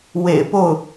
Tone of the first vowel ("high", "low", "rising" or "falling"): low